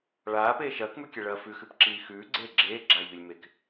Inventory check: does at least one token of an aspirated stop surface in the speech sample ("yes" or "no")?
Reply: no